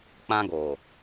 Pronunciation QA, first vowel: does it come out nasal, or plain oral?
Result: nasal